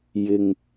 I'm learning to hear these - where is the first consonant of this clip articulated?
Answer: palate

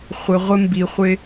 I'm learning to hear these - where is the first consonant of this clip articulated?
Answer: uvula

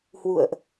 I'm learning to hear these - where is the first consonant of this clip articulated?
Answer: throat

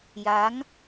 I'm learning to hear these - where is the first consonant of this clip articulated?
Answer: palate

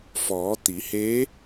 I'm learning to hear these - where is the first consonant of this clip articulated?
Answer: lips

